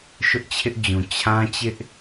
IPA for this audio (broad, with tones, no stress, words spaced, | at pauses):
ʃʊ˦ʔt͡ɕʰɪ˦ʔd͡ʑũ˨ t͡ɕʰã˦t͡ɕɪ˦ʔ